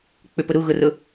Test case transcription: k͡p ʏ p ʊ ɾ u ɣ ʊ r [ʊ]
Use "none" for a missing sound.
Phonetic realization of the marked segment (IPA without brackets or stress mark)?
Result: ʊ